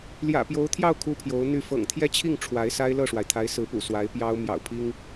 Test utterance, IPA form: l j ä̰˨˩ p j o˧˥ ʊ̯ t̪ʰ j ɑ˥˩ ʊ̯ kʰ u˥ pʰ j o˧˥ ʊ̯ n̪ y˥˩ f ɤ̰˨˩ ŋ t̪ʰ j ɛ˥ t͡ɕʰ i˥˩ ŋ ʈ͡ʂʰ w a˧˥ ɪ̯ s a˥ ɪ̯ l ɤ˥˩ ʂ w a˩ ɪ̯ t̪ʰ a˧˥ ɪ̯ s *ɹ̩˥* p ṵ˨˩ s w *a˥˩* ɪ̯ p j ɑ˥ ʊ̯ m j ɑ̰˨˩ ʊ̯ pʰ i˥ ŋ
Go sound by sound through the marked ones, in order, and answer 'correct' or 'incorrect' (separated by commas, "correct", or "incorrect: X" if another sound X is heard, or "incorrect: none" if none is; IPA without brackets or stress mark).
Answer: incorrect: ɹ̩˧˥, incorrect: a˧˥